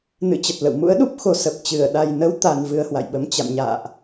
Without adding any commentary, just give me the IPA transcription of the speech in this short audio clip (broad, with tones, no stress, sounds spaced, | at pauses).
n ɨ̰˧˥ t͡ɕ ə˨˩ t̚ l ə̰˧˨ w m ṵ˧˥ ə̯ ɗ u˦˥ p̚ x o˨˩ s ə˨˩ p̚ t͡ɕ ɨ˧˩ ə̯ ɗ a˨˩ j n ə˨˦ w t̪ a˨˩ n v ɨ˧ ə̯ h w a̰˧˨ j ɓ ə˨˦ m t͡ɕ a̰˧˨ m ɲ a̰ː˧˨ ʔ